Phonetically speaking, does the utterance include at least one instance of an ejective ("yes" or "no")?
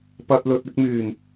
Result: no